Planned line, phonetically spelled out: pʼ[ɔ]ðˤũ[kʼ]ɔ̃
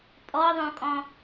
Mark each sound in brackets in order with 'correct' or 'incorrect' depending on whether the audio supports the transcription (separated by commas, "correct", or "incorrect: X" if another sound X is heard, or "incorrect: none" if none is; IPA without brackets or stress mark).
correct, correct